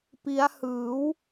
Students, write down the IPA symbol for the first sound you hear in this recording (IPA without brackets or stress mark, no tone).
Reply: p